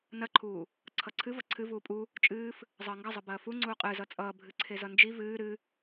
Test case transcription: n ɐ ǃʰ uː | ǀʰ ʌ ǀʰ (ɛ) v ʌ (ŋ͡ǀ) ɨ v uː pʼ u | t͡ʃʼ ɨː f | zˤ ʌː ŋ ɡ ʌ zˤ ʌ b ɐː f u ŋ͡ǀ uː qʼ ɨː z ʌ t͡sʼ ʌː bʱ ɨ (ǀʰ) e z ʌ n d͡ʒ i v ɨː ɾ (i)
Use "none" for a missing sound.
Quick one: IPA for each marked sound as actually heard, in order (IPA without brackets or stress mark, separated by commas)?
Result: ɨ, ǀʰ, ǀʰ, ɨ